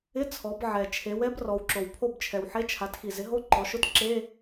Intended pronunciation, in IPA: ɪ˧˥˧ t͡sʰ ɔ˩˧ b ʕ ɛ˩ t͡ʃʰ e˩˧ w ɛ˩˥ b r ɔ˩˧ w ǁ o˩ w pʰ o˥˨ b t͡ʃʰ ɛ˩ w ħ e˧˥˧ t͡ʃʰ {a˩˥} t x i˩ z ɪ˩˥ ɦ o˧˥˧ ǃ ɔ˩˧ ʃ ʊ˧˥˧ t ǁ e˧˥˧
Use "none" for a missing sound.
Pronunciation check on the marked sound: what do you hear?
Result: a˩˥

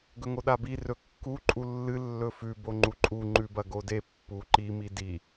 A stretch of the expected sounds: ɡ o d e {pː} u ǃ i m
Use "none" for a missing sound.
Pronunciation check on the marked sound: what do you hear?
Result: pː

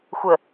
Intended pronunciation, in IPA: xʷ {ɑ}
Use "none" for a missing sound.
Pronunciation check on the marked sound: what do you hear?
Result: ə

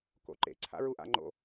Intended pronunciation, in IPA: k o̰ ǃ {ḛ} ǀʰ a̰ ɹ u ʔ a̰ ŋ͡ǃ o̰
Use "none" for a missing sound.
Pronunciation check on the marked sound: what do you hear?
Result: ḛ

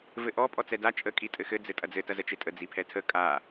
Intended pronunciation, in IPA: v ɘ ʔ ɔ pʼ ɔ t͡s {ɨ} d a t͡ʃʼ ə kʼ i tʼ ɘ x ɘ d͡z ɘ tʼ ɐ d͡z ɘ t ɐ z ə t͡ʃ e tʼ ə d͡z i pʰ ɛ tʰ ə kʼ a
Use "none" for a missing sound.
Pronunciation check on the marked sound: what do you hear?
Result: ɛ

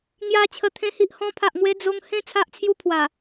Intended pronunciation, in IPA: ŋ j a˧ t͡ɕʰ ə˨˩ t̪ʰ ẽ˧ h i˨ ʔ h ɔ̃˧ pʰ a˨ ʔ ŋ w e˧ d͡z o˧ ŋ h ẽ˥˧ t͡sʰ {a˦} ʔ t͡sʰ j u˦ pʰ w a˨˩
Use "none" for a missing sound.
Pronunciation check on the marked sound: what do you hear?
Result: a˦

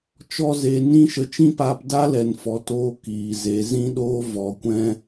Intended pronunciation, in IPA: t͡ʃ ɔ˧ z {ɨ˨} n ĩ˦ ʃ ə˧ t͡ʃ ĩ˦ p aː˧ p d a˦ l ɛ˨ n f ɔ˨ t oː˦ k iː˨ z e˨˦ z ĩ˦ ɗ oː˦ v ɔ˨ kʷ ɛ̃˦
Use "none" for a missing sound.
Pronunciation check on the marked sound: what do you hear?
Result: e˨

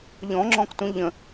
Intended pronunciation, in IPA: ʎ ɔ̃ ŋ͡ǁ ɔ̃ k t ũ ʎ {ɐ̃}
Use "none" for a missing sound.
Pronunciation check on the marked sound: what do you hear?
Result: ə̃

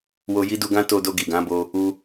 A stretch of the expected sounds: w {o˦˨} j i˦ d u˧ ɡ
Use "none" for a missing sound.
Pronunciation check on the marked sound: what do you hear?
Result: o˧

